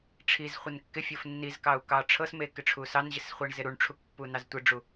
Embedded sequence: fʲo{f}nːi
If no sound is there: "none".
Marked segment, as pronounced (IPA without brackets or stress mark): f